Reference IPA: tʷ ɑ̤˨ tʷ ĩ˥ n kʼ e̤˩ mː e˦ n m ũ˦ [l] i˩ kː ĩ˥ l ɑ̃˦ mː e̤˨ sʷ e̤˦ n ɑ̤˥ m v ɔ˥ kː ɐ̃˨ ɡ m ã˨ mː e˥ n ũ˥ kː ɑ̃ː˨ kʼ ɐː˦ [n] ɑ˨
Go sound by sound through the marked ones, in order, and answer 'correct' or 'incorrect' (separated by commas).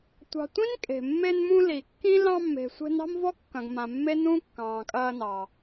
correct, correct